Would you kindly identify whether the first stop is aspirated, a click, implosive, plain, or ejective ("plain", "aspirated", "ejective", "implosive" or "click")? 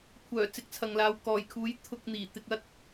aspirated